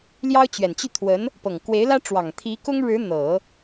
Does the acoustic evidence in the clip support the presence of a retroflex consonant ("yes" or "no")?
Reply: yes